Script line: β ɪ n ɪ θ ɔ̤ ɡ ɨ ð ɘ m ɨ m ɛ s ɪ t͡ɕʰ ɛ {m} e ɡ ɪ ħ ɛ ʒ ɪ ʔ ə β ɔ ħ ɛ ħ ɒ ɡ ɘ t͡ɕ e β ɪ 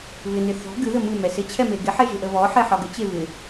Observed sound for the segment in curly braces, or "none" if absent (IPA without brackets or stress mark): m